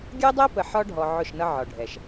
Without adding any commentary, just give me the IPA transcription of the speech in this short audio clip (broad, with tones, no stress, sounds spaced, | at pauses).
ɡʲ ɜ˦ dˤ ɛ˦ p ə˨ ħ ɒ˦ ɖʱ ɔ˨ ʕ ʊ˦˨ ʃ n ʌ˦ ʕ ɒ˨ ɖʱ ɛ˨ ʃ